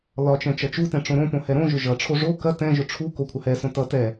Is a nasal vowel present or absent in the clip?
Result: present